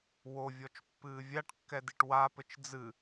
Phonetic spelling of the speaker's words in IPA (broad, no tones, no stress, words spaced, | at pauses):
wovʲɔt͡ʃpːɨː vʲaʈkːɛdiʈ wapɘt͡ʃ d͡zɨ